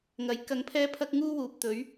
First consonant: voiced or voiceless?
voiced